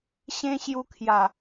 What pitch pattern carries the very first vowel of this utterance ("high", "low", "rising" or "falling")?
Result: high